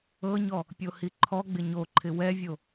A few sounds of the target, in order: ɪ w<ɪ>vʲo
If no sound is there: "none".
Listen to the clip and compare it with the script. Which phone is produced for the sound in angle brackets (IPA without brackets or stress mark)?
ɛ